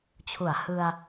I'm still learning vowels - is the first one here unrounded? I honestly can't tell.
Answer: no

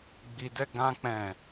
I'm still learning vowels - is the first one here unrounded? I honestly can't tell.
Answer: yes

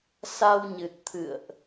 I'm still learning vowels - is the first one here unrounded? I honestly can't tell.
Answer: yes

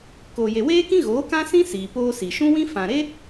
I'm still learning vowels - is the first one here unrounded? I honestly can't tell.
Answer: no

